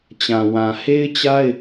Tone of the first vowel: low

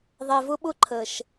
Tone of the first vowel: low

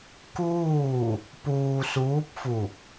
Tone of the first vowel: falling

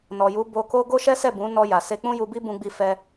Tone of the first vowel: low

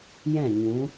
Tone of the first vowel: falling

